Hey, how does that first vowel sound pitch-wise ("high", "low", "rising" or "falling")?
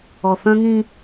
low